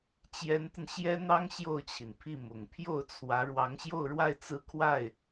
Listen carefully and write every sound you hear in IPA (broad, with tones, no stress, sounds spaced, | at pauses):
t͡ɕ j ɛ˧˥ n t̪ ə˧ n ɕ j ɛ˥ n̪ ɑ˥ ŋ ɕ j o˥˩ ʊ̯ t͡ɕʰ i˩ n pʰ i˥˩ m ʊ˨˩ ŋ pʰ j o˥˩ ʊ̯ t͡sʰ w ä˧˥ ɻ w ɑ˧˥ ŋ ɕ j o˥˧ ʊ̯ ɻ w a˥˧ ɪ̯ t͡s ɹ̩˥˧ kʰ w a˥˩ ɪ̯